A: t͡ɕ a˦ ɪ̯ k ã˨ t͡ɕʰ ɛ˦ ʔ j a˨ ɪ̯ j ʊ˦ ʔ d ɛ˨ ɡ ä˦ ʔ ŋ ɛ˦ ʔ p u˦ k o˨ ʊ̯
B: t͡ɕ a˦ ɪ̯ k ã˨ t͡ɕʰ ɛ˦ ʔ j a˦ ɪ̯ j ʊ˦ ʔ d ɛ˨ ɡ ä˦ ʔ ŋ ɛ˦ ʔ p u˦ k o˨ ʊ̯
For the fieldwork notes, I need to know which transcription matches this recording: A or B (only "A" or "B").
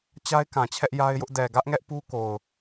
B